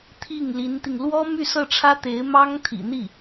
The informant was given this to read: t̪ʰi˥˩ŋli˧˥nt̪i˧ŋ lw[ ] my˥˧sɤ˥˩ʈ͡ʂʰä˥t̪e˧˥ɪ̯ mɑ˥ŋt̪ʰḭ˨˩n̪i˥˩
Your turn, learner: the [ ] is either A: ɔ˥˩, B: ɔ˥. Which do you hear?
B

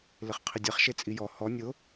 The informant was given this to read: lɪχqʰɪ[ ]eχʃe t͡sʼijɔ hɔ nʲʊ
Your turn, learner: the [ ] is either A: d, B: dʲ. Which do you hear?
B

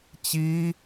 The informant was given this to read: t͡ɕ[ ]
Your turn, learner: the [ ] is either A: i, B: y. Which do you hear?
A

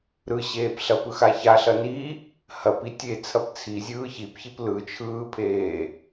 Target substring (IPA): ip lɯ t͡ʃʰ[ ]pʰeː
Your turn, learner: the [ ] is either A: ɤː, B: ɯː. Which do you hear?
B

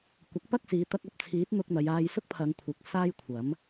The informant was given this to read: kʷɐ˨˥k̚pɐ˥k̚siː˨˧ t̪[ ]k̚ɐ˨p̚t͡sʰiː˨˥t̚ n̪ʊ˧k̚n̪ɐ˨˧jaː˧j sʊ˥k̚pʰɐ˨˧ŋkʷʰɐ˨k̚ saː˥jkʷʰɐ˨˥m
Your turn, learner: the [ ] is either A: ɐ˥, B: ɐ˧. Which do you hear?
B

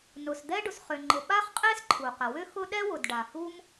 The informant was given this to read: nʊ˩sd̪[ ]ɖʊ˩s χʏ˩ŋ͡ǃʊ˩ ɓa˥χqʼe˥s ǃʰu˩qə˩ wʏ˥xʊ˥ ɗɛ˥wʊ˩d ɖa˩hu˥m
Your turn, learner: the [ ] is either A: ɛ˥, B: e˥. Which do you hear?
A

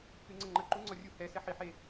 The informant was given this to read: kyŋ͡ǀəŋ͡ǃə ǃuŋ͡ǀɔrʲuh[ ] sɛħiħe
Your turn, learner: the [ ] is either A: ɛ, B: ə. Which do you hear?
A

